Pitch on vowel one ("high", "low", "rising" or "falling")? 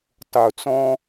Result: low